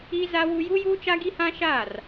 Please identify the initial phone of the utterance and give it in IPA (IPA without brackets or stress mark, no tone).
i